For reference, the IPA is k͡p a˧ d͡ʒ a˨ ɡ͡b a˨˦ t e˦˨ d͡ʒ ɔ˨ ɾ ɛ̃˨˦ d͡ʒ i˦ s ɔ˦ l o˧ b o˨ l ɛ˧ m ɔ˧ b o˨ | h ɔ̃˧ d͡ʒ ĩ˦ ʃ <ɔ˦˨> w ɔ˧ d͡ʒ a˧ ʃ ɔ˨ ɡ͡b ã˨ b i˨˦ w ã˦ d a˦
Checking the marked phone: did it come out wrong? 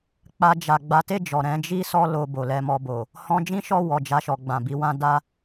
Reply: no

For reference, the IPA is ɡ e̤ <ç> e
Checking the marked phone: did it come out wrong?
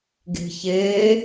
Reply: no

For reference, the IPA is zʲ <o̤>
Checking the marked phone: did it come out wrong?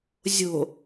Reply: no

